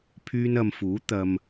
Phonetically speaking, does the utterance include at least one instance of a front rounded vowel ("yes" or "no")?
yes